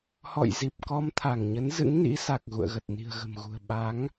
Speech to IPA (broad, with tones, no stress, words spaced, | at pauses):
hɔ̰˧˨jzi˨˩p̚ kɔ˧m t̪ʰa˧˩ŋɲə˨˦n zɨ̰˧˥ŋnḭ˧˥sa˨˩k̚ ɣṵ˧˨ə̯ɣə˨˩t̚ ni̤˨˩ə̯ɣə̤˨˩mɣṳ˨˩ə̯ ɓa˨˦ŋ